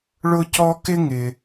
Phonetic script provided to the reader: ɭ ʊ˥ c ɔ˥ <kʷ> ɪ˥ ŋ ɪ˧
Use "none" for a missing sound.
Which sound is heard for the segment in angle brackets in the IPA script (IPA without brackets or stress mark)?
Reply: k